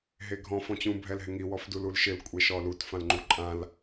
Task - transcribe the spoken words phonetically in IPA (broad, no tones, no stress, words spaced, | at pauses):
ɦeɡʱɔ̃ fɔ̃t͡ɕũ bʱɛlɦɪŋi wɔfdululʃɪl kʷʼeʃɔlut fãlŋ͡ǃuǃʼãl